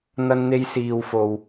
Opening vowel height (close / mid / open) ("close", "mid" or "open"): open